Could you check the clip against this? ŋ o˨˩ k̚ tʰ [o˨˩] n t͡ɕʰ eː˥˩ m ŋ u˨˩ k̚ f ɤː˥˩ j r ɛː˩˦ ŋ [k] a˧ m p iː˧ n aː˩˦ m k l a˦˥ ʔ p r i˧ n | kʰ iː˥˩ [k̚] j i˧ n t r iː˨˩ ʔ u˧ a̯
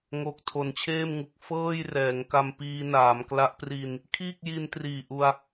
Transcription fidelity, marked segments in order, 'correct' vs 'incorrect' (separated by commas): incorrect, correct, correct